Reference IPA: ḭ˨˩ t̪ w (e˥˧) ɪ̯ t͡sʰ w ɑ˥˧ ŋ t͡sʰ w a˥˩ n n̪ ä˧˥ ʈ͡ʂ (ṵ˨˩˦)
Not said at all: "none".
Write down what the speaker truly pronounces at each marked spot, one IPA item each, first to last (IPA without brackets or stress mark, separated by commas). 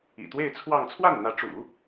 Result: e˥˧, ṵ˨˩˦